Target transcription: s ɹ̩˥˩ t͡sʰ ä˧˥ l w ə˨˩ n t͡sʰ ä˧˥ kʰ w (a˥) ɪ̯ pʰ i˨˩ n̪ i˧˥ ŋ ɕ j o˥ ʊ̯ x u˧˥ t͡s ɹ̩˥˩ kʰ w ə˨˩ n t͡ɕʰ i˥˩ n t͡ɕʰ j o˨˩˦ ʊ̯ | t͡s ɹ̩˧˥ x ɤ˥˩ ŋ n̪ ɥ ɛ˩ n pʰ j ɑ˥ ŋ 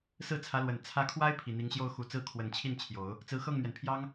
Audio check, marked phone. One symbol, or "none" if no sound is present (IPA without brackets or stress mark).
a˥